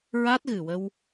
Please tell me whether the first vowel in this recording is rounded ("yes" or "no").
no